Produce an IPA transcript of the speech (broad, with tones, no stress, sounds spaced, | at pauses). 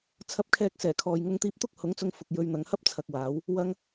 t͡sʰ ɐ˧ p̚ kʰ ɛː˧ k̚ s ɛː˨˩ kʰ ɔː˨ j ŋ ʊ˧ ŋ t̪ iː˧ p̚ t̪ ʊ˥ k̚ h ʊ˨˥ ŋ t͡s ʊ˧ ŋ f ʊ˨ k̚ j ɵ˧ ɥ n̪ ɐ˨˧ ŋ h ɐ˥ p̚ t͡sʰ ɐ˨ k̚ w aː˨˧ w | w ɐ˧ ŋ